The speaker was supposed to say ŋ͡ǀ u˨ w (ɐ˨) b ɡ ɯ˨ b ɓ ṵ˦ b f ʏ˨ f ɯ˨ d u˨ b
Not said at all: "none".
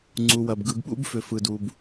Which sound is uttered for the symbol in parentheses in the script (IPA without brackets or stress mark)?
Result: ɐ˨